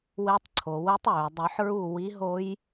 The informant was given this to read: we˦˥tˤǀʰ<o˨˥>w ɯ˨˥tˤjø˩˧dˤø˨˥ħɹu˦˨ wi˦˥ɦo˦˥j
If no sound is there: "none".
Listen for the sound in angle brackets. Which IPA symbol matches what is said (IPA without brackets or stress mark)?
o˨˥